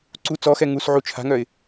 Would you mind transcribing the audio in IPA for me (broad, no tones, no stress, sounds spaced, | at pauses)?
ǀ u t͡s ɔ x ɛ ŋ u s ʕ u t͡ʃʰ a̤ ŋ œ ɪ̯